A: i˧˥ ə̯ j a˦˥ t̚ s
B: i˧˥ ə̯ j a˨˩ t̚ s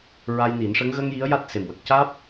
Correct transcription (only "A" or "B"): A